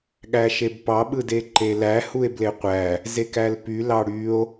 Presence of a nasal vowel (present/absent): absent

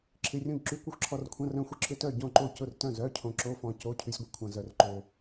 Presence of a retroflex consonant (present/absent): absent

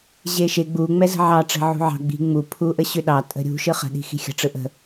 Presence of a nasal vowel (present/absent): absent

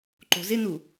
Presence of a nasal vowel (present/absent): absent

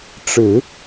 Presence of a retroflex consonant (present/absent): present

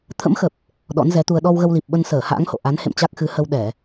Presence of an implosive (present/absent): present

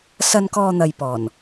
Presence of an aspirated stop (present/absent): absent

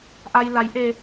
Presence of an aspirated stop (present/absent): absent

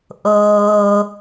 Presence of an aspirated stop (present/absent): absent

